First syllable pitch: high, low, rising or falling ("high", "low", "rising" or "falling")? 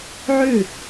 falling